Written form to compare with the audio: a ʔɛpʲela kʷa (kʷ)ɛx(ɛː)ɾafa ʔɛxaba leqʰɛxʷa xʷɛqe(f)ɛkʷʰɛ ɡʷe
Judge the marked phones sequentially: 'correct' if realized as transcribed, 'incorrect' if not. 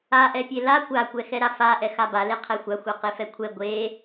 correct, incorrect: ɛ, correct

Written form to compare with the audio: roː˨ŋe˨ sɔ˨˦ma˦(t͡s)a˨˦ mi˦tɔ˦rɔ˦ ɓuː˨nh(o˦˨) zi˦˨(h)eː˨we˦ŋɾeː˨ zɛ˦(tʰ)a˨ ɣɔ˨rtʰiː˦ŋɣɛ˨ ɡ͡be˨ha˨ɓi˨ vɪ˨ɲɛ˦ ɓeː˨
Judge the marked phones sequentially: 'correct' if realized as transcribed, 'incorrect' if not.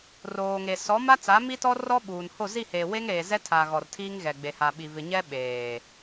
correct, correct, correct, correct

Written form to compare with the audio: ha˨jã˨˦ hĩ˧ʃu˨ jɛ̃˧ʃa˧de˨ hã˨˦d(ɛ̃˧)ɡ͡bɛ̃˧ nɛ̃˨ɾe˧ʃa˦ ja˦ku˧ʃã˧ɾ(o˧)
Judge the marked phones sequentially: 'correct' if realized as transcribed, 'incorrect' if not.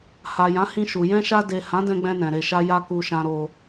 correct, correct

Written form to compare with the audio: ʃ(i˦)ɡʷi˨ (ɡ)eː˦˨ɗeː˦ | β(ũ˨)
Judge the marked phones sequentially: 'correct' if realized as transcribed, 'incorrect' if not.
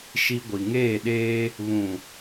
correct, incorrect: ŋ, correct

